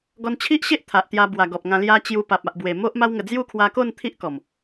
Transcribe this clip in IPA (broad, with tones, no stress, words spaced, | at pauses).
ɡɔ˧nt͡ɕʰi˦ʔɕe˦ʔ t̪ʰa˨ʔ t̪ja˧bwa˨˩ɡɔ˨p̚ŋã˧ lja˧ t͡ɕju˧pa˨p̚ a˨ʔbwe˨˩ mo˦ʔ ma˦wŋə˧ d͡zju˥˧kʰwa˧ko˥˧n t̪ʰi˦ʔkɔ˨˩m